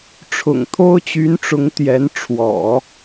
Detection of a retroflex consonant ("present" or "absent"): present